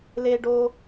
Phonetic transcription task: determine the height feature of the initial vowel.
mid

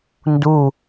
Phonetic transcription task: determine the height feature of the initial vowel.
high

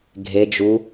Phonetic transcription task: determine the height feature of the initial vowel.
mid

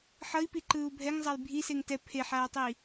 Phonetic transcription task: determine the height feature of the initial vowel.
mid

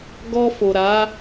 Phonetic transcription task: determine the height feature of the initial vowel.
mid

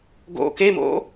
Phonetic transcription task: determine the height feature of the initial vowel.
mid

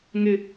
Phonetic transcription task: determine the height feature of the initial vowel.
high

